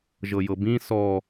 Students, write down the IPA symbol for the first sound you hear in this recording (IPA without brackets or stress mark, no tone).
ʒ